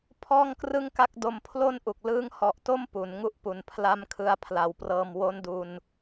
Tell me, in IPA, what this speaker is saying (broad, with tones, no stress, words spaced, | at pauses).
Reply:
pʰɔː˥˩ŋkrɯ˥˩ŋka˥˩k̚do˧m pʰlo˥˩nʔu˨˩k̚ lɯː˦˥ŋhɔ˨˩ʔto˥˩m pu˩˦nŋu˦˥ʔpu˨˩n pʰla˦˥m kʰɯ˧a̯pʰla˩˦wprɤː˧m wo˦˥ndu˧n